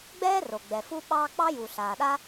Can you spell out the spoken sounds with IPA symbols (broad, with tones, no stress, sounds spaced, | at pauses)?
ɡ͡b ɛː˥ r o˩ ɡ͡b ɛ˩ f u˥ ɓ ɑː˥ k͡p ɑ˥ j u˩ ɬ aː˩ ɗ a˥